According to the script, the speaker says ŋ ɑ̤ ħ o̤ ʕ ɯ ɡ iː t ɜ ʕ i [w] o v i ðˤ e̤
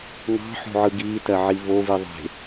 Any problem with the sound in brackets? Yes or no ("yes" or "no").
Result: yes